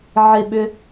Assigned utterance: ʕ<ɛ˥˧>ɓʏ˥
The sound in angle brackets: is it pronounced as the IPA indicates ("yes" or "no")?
no